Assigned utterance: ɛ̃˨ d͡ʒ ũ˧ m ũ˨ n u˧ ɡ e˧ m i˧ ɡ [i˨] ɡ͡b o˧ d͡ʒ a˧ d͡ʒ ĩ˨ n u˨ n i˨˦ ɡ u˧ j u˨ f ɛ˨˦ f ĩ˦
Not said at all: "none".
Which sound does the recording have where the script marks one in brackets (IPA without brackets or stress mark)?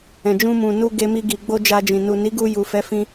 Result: i˨